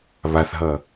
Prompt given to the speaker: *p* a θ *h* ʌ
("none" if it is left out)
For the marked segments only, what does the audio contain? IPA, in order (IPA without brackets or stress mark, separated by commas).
β, ɦ